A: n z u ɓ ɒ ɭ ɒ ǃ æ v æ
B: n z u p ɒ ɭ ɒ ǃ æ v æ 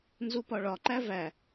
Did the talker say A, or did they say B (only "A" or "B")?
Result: B